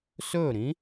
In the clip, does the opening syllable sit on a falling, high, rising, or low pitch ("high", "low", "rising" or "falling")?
falling